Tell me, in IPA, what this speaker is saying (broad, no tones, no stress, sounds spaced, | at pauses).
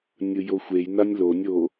nʲ ɯ j o xʷ e j n a nʲ l o nʲ o